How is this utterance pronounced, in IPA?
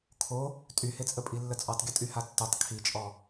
kʰ o | tʼ y h e t͡sʼ ə pʼ i lː ə t͡sʼ ɔ tˤ ɡʲ ə tʼ y h a tː y tˤ kʰ i t͡ʃʼ ɔ

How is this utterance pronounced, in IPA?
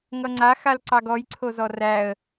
ŋ ʌ ŋ͡ǀ a x a l ǀ ɑ ɡ ɔ j ǀʰ o z ɔ r æ ə̯

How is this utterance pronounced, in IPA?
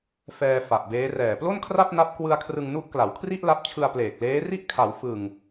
f ɛː˧ f a˨˩ ʔ b eː˦˥ r ɛː˨˩ p l o˥˩ n kʰ r a˥˩ p̚ n a˦˥ p̚ k w ɯ˧ a̯ kʰ r ɯ˧ ŋ n u˦˥ ʔ k l a˩˦ w kʰ r i˥˩ ʔ l a˦˥ p̚ t͡ɕʰ ɯ˧ a̯ p l eː˨˩ k̚ l eː˦˥ r i˥˩ ʔ kʰ a˩˦ w f ɯ˨˩ ŋ

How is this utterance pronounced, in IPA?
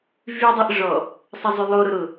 v y dˤ i ʔ ʐ ɔ | sˤ ɐ zˤ y lˠ o ɾ ʊ ɾ ʊ

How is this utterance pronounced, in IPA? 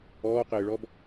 ɔː q ɪː ɭ ɔ b

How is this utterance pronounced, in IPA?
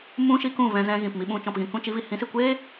m ũ˦ ʃ i˦ k ũ˦˨ v ɛ̃˧ z ɛ̃˧ ɣ ĩ˨ p m i˧ ɓ ũ˧ t͡ʃ ɔ̃˨ p ɣ ĩ˨ k ũ˦˨ t͡ʃ i˧ v i˨ h ĩ˨˦ s i˨ kʷ eː˦

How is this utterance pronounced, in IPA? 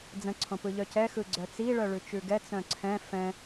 d͡z ə̃ ǀʰ õ p ɯ ʎ œ c ɛ x ɯ ɡ͡ǀ œ t͡s i ɭ œ ɭ ʉ t͡ʃ ʉ ɡ ɛ t͡s œ̃ ǀʰ ɛ̃ f ɛ̃

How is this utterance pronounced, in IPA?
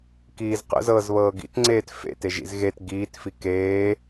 k iː z q ə̰ z ɤː z β ɤː ɡ ḭ t ŋ͡ǀ eː t f ḛ t e ʒ ḭ z ɣ e t ɡ iː t f i k eː

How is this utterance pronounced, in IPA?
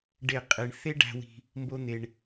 ɖ e˦˨ qʼ e˧ ɳ θ e˦ ɖ æ̤˧ w i̤˧ | m b o˦ n̪ e˧ ɳ

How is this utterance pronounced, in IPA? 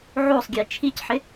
ʕ o sˤ ɡʲ e t͡ʃʰ i c ħ ɪ

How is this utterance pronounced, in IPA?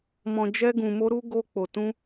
m ɔ̃˧ d͡ʒ ɛ˦ ɡ ũ˧ m o˦ ɾ u˦ ɡ o˦ k͡p o˧ t ũ˦

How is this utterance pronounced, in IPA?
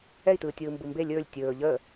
ɛ i̯ t ɯː tʲ ɯː m b ɯ m b e lʲ ɵː lʲ tʲ ɵː ʎ əː

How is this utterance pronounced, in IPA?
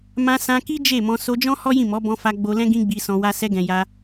m ã˧ s ã˧ k i˦ d͡ʒ e˦˨ m ɔ̃˧ s o˧ d͡ʒ ɔ̃˦ h ɔ˦ j ĩ˦˨ m ɔ˨˦ b ɔ̃˧ f a˧ ɡ͡b o˧ l ɛ̃˦ ɡ ĩ˦ ɡ͡b i˧ s ɔ̃˧ w a˧ s ɛ˧ ɡ ɛ̃˨ j a˧

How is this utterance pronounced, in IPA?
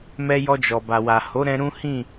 m ɛ˧ j ɔ˧ d͡ʒ ɔ˨ b a˨ w a˨ h o˨˦ ɾ ɛ̃˧ ɾ ũ˦ h ĩ˦˨

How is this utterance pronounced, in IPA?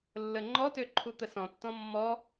lː ə ŋ͡ǃ ɔ t ø ǃʰ u t̪ ə s ɔ̃ tː ɔ̃ mː ɔ

